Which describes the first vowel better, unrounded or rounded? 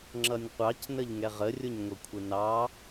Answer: unrounded